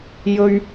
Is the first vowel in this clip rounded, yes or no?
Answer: yes